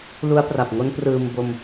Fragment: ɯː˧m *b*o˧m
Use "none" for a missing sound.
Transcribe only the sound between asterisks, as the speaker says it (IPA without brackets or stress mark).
b